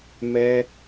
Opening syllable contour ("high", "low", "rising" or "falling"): high